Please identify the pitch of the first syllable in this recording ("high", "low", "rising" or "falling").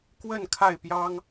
falling